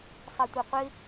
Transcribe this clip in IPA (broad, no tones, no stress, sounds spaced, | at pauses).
sˤ i tʷ e qʷ ɪ